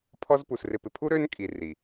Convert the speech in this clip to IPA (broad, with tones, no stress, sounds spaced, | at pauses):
pʰ ɔ˦ z p u˨ s r ɪ˨ p ɪ˨ pʰ u˦ ɾ ø˦ n kʼ i˨ r i˨